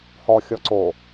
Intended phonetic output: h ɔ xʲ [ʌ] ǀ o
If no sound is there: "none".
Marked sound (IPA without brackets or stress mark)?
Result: ɔ